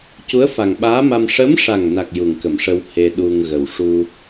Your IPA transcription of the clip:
c u˧˥ ə̯ f a˨˩ ŋ ɓ aː˧˥ m a˧ m ʂ ə˧˥ m ʂ a˨˩ ŋ n a˨˩ k̚ j u˨˩ ŋ k ə˨˩˨ m ʂ ə˧ w h e˧ ɗ u˧ ŋ ɣ ə˨˩ w ʂ u˧

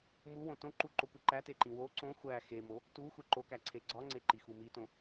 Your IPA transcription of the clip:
m u w õ t õ ǃ u ǃ o kʷ i ǃ æ t e ǃ ĩ w o ǀ õ xʷ æ x e m o | t u xʷ e ǃ o k æ ǀʰ e ɡ͡ǀ ɒ ŋ͡ǀ e ǃ i x u m i t õ

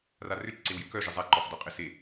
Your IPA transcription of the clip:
r a r ʏ t͡ʃ ǀ e w j ø k œ ʒ ɪ zˤ a ǃ ɔ χ d ɔ qʼ ɪ s e

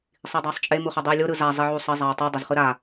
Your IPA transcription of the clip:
sˤ i dˤ a sˤ t͡ʃʼ e m u χ ʌ dˤ ɯ y̯ lʲ o ɾ ɯ z a zˤ i ʕ u sˤ ʌ zˤ a y̯ tˤ u dˤ ʌ z χ ɯ ɾ a

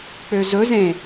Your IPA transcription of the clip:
k͡p ø z ɵ z ẽ

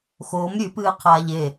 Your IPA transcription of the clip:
x oː m ɾʲ ʉ p ɨː qʰ aː ʎ e

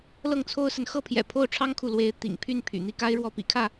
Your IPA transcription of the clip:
l ɤ˥˨ ŋ t͡sʰ o˦ ʊ̯ s ə˨ n x ɤ˥˨ pʰ j ɛ̰˨˩ pʰ o˥˨ ʊ̯ ʈ͡ʂʰ ɑ˦ ŋ kʰ u˨ l w e˨˦ ɪ̯ t̪ ḭ˨˩ ŋ pʰ y˥˨ n pʰ y̰˨˩ n̪ i˥˨ k a˦ ɪ̯ ɻ w ɔ˥˨ p ḭ˨˩ kʰ ä˥˨

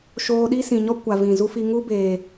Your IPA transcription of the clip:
ʃ oː˧ ɗ i˦ s ĩ˨ ɲ ɔ˦ kʷ a˨ v ĩ˨ z u˦ f i˧ ŋ u˦ b eː˨

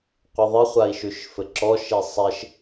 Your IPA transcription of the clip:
qʷ ə ðˤ ɪ χʷ a i̯ ʃ ʉ ʃ f ɘ ǁ ɔ ʃ i sˤ ɪ ʃ

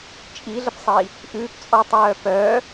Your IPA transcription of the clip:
t͡ʃʼ i ɮ ə p sˤ iː | ʔ ʉː p t͡sʼ ɔː tˤ j œː p œː

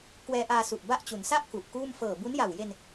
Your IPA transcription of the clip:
k w ɛː˧ ʔ aː˧ s u˨˩ ʔ b a˥˩ ʔ t͡ɕ u˩˦ n s a˥˩ ʔ k u˨˩ ʔ k uː˥˩ m f ɤː˨˩ b u˦˥ n j a˨˩ w j e˧ n

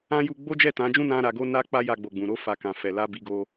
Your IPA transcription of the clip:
ã˦ j u˧ ɡ͡b o˦ d͡ʒ ɛ˦˨ t ã˨˦ d͡ʒ ũ˦ n ã˦ ɾ a˧ ɡ o˧ n a˧ k͡p a˦ j a˧ ɡ͡b o˨ ɡ͡b ũ˨ ɾ o˧ f a˨ k ã˨ f ɛ˨ l a˧ b i˧ ɡ o˧

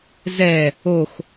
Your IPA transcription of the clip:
z ɛ | o x

